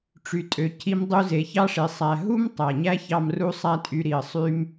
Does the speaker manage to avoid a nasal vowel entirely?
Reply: yes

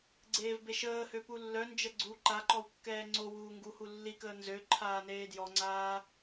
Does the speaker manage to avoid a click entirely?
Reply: no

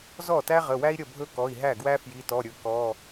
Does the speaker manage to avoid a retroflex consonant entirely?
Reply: yes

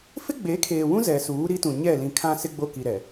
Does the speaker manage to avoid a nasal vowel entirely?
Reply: no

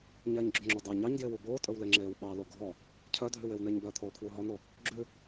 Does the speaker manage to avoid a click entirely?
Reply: no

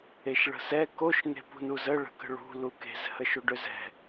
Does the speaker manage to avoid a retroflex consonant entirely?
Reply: no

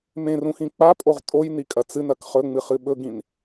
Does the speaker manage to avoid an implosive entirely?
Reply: no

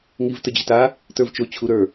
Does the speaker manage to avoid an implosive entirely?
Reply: yes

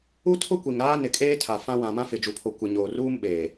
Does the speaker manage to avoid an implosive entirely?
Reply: no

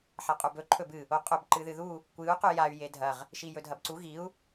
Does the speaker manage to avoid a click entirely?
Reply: no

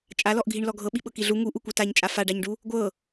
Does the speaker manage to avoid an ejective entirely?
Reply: no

